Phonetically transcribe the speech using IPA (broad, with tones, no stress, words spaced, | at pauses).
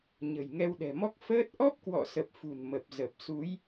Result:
ɲə̤˨˩jŋɛ˧wɗɛ̤˨˩mɔ˦˥k̚ fəː˦˥t̚ ʔɔ˦˥p̚kwɔ̰˧˨sə˨˩p̚ fṳ˨˩nmə˨˩p̚ zə˨˩p̚su˨˦j